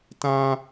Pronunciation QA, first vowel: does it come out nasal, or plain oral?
nasal